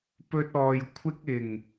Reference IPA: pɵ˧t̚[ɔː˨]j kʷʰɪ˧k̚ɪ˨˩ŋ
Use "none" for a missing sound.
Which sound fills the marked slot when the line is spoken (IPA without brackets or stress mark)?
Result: ɔː˨